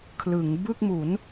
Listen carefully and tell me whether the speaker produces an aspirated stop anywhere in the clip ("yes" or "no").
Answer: yes